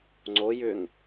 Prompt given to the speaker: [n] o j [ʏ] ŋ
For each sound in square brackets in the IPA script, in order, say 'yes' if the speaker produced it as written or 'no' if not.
no, yes

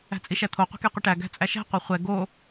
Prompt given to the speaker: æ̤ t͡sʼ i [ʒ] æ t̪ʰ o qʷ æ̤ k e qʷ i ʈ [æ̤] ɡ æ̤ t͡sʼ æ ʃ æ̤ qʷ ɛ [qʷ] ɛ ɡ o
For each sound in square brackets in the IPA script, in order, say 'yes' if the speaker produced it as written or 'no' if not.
no, no, no

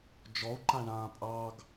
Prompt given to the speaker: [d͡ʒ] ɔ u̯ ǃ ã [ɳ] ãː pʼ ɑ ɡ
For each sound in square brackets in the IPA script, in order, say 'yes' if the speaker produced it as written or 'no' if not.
yes, yes

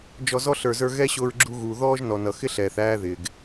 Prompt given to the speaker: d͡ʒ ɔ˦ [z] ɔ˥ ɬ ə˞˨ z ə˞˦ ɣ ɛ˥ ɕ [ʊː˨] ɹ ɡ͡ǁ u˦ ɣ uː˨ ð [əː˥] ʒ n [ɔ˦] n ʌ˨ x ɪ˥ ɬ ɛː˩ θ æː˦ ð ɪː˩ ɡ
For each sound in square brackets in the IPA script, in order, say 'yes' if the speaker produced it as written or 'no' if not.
yes, no, no, no

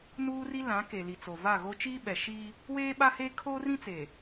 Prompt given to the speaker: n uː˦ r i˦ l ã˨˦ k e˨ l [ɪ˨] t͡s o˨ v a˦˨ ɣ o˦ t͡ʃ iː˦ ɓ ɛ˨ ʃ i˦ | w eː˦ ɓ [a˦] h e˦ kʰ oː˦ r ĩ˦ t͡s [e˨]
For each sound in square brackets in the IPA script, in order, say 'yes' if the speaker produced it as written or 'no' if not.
no, yes, yes

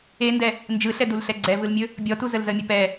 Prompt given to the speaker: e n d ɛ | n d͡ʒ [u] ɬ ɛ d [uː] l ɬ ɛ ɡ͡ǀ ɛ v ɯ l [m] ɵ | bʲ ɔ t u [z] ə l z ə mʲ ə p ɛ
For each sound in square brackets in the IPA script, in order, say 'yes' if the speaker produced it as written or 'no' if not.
no, no, no, yes

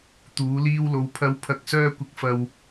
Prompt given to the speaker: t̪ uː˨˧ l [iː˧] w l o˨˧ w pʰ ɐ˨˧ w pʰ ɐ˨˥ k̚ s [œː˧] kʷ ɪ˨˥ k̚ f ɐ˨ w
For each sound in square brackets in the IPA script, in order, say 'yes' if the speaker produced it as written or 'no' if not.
yes, yes

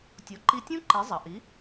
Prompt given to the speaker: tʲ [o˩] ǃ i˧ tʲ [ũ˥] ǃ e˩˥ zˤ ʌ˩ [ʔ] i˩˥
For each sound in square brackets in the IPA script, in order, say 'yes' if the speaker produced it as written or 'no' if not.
no, yes, yes

